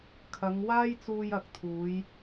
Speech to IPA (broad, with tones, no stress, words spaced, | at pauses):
kʰɐ˨˧ŋ waː˥jt͡suː˧j ɐ˨k̚t̪ʰuː˨˧j